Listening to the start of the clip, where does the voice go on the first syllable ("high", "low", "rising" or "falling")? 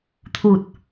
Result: low